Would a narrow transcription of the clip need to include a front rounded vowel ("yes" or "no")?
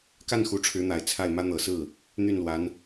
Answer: yes